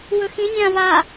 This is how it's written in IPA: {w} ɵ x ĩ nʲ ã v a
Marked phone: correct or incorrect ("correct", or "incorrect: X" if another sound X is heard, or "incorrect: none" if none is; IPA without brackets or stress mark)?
correct